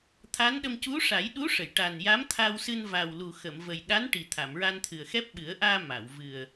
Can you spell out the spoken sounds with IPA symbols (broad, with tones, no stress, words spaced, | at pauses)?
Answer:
t̪ʰa˧˥nɗə˧m cu˧˥ ʂa˨˩˦jɗu˧˥ʂə˨˩˨j ʈa˨˩nja˧˥m t̪ʰa˧wsɨ˧n va˨˩wlu˨˩xə˨˩˨m və˨˩jɗa˧˥n ʈi˨˩ t̪ʰa˨˩˨mɹa˧nt̪ʰɨ˨˩ə̯xɛ˦˥p̚ ɓɨ˨˩˦ə̯ʔaː˧ ma˨˩˨wvɨ˨˩ə̯